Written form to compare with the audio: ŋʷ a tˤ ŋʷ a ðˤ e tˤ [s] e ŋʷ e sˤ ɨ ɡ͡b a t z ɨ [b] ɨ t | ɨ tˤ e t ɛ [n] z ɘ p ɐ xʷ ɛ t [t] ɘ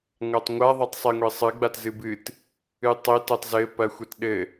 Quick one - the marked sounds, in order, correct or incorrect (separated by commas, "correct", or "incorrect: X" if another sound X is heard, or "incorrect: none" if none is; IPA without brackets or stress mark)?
incorrect: sˤ, correct, incorrect: tˤ, incorrect: ɗ